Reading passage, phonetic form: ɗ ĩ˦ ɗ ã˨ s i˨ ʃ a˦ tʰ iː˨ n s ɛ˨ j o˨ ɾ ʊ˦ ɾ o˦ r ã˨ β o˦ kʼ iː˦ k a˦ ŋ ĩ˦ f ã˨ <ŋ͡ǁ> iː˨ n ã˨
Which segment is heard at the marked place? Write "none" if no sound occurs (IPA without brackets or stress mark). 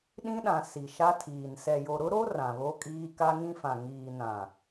ŋ